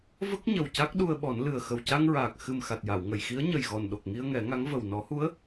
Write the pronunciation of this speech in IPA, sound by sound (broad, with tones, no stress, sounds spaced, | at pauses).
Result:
v ə˦˥ k̚ ɲ ə˨˩ w c a˦˥ k̚ ɗ u˧ ə̯ ɓ ɔ˨˩˦ n l ɨ˨˩ ə̯ x ə˨˩ w c a˧ ŋ ɹ aː˨˩ k̚ x ɨ˨˩ m x a˨˩ t̚ j a˨˩˨ w ŋ ə˨˩˨ j x i˧˥ ə̯ ɲ ə˨˩ j ɣ ɔ˨˩ n ɗ o˨˩ k̚ ŋ i˧ ə̯ ŋ ɛ˨˩˦ ŋ a˧˥ ŋ v ə˨˩ w n ɔ˨˩˦ h u˧˥ ə̯